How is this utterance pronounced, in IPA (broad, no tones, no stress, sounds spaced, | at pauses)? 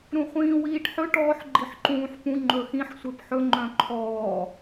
ɾ ũ χʷ ĩː w iː ʈ ħ ɵ ʈ ɔː ħ ɡ͡ǃ i ħ ǃ ũː ħ p ũ ŋ͡ǃ ɵ x ĩ ħ sʷ e p ħ ɵ ŋ͡ǃ œ̃ ǃʰ ɔː